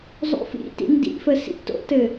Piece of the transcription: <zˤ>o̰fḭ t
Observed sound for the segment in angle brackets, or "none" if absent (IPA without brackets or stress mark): zˤ